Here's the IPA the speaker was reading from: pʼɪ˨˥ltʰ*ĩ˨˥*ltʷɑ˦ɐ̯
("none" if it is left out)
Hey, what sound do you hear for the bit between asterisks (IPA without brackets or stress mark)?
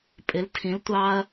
ĩ˨˥